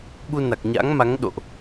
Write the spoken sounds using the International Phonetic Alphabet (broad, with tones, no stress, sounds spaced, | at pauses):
ɓ u˧ n a˨˩ k̚ ɲ a̰˧˥ ŋ m a˨˦ ŋ ɗ o̰˧˨ ʔ